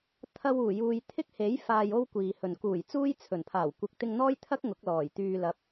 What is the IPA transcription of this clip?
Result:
t̪ʰ ɐ˧ w uː˨˩ j uː˨ j t̪ʰ ɪ˥ k̚ h e˨˥ j f aː˨ j o˧ w kʷ iː˨ h ɵ˨ n k uː˨˩ j t͡s uː˥ j t͡sʰ ɵ˨˩ n pʰ aː˨˩ w kʷ ɪ˨˥ k̚ t̪ ɪ˧ ŋ n̪ ɔː˥ j t̪ʰ ɐ˥ k̚ ŋ ʊ˨˥ k̚ l ɔː˨˩ j t̪ yː˧ l ɐ˨˥ p̚

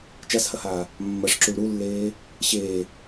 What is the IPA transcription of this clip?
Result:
t͡ʃ a s h ɐ h aː | mː ɐ ʂ ǁ u ɭ ɾ u lː eː | ɕ eː

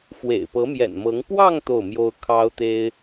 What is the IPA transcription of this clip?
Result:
f w ḛ˨˩ ɪ̯ p ɤ˧˥ m j ɛ̰˨˩ n m ɤ˧˥ ŋ p w ɑ˥˧ ŋ t̪ o˥˩ ʊ̯ m j o˥ ʊ̯ kʰ ɑ˥ ʊ̯ t̪ e˥ ɪ̯

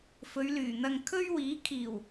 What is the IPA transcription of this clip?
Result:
f ɵ˨˧ ɥ l yː˨˩ n̪ ɐ˧ ŋ kʰ ɵ˥ ɥ w iː˨˥ kʰ iː˨˩ w

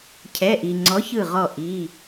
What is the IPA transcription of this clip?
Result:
cʰ ɛ˩˧˩ ʔ i˩ ŋ͡ǀ ɔ˩˥ ç ɯ˧˩ ʁ ɔ˧˩ ʔ i˩˧˩

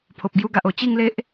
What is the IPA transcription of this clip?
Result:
pʰ o˨ p̚ ɡ j u˧ ɡ a˨ ʔ o˨˩ t͡ɕ i˥˧ ŋ l e˦ ʔ

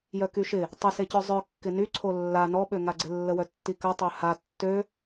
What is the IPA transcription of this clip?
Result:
j œ k y ʃ ɪ | tˤ ɪ s e c œ zˤ œ kː ɪ n y ǀʰ o lː a n ɔ ɓ ø ŋ a ɡ͡ǀ ɪ lː ə w œ tː i k ɐ tˤ œ h a tː ø

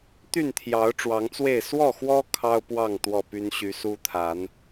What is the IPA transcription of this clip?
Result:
t̪ y˥˨ n t̪ʰ j ɑ˨˦ ʊ̯ ʈ͡ʂ w ɑ˨˦ ŋ t͡s w e˥˨ ɪ̯ s w ɔ˥˨ x w ɔ˦ kʰ ɑ˦ ʊ̯ p w ɑ˥˨ ŋ t̪ w ɔ˥˨ p y˦ n ɕ y˨˦ s u˦ t̪ʰ a˨˦ n

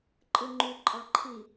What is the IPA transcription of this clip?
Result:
ǃʼ ɯ ŋ͡ǃ y ǃʼ ɑ ǃʰ i

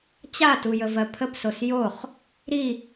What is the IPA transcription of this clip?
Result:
t͡ɕ a t u j ə v ɜ pʰ ə p s o s j o χ | ɾ i

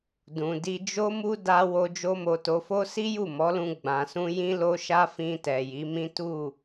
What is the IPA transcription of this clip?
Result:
d ũ˨ d i˧ d͡ʒ o˦ m u˦ d a˧ w o˧ d͡ʒ o˦ m o˧ t o˧ f o˦ s i˦ j u˦˨ m ɔ˨˦ l ũ˧ ɡ͡b ã˨ s ũ˧ j ĩ˧ l o˧ ʃ a˧ f ĩ˧ t ɛ˨ j i˨˦ m ĩ˦ t u˦˨

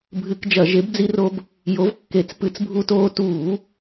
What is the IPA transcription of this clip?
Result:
bʱ ɨ˧˩˧ k d͡ʒ ɐ˧˩˧ ʒ e˨˥ b d͡z i˦ r o˦ b | j o˨˥ v kː e˧˩˧ t͡s p ɨ˧˩˧ t͡s bʱ u˦ t oː˦ t uː˧˩˧

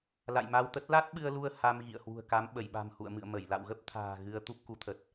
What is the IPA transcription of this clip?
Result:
l a̰˧˨ j m a˧ w t̪ ə˦˥ t̚ l a˦˥ t̚ ɓ ɨ˧ ə̯ l u˧ ə̯ h a˧ m ɣ ḭ˧˨ ə̯ h w ṳ˨˩ ə̯ k a˨˦ m ɓ ə˧˩ j ɓ a̤˨˩ m h ṵ˧˨ ə̯ m ɨ̰˧˨ ə̯ m ə˧˩ j l a̰˧˨ w ɣ ə˦˥ p̚ t̪ʰ a̤ː˨˩ ɣ ɨ˧ ə̯ t̪ u˦˥ p̚ k u˨˦ t̪ʰ ə˨˩ t̚

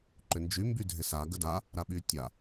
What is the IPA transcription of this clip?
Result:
ǃ ʏ n d͡ʒ y m b y dʱ ɪ s a ɡ ə d a | ɾ a ɓ y tʲ a

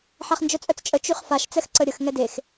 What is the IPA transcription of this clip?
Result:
ħ a χ n d͡ʒ œ t͡sʼ œ t͡s t͡ʃʼ ə t͡ʃ y χ f a ʃ t͡s ɛ x ǀ ə ɾʲ ə x ŋ ɛ d e x

